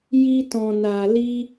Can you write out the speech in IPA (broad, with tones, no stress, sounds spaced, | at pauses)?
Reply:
j i˧ t ɔ̃˨ n a˨ l i˧